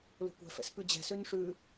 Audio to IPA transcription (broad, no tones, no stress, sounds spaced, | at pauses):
l o̤ kʷ ɛ̤ f ɛ̰ s p ʉ d͡ʑ ɛ̤ s ø n ʂ ʉ